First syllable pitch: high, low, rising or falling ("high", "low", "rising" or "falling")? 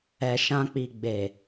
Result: low